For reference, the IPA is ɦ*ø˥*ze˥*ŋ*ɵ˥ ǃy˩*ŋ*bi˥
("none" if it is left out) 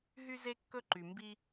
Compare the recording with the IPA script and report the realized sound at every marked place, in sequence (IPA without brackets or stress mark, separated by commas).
y˥, kː, m